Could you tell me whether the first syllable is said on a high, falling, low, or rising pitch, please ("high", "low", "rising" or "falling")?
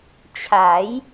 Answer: rising